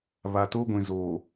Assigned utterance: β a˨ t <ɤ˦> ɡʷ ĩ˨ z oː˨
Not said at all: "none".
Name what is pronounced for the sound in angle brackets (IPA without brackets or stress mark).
o˦